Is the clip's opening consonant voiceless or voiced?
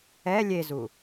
voiced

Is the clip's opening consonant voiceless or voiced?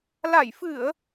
voiced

